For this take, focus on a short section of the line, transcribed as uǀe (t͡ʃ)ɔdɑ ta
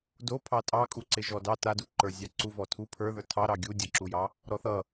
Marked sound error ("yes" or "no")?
yes